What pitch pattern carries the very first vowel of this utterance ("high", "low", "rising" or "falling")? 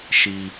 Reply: low